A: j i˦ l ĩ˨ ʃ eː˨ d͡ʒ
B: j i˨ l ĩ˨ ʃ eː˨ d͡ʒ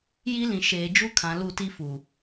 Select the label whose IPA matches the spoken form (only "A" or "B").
A